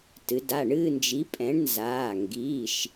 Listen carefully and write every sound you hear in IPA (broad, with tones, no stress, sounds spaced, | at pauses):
t ɨ˩˧ d a˩˧˩ ɳ ɨː˥˧ n d͡ʒ i˨˥ pʼ ɛ̃˨˥ ɳ n z aː˩˧˩ ŋ ɡ iː˩˧˩ ʃ